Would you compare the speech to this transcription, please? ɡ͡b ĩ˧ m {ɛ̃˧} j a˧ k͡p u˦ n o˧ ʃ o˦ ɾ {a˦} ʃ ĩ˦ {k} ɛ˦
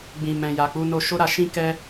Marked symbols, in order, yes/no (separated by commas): yes, no, yes